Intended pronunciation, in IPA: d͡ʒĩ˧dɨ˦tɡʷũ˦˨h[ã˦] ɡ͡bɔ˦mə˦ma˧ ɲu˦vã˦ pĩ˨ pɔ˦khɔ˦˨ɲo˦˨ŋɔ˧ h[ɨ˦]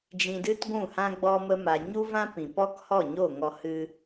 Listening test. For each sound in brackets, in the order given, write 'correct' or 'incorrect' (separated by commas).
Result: correct, correct